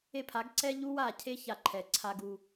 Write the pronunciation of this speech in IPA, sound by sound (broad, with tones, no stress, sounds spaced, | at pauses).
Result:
e˦ pʰ a˨˦ ɡ ǀ ɛ˦ ʎ u˦ w a˦˨ cʰ e˦ ç a˨ ǃʰ ɛ˨ ǀʰ a˦ ɡ u˦